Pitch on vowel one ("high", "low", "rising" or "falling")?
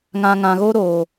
low